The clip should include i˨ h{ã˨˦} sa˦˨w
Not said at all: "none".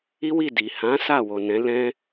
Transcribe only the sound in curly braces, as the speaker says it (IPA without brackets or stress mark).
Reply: ã˨˦